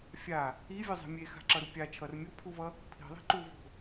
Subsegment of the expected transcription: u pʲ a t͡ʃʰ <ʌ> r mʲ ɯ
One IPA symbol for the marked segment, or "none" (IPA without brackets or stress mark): ʌ